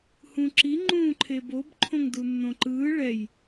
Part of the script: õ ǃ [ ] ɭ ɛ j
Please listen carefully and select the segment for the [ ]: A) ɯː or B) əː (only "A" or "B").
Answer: A